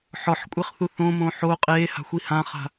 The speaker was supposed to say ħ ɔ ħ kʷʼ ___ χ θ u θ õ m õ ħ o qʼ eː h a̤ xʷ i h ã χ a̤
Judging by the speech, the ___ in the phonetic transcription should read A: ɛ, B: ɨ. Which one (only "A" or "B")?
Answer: A